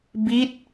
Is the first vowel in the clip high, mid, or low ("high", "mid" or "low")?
high